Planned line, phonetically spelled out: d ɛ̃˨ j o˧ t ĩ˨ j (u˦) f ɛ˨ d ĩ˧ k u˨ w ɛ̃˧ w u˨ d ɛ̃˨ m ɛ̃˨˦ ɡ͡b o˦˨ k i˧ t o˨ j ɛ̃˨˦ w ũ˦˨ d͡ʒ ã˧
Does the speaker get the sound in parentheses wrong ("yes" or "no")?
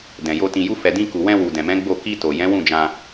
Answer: yes